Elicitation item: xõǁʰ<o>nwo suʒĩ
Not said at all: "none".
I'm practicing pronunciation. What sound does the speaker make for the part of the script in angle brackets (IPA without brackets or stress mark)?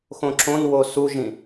õ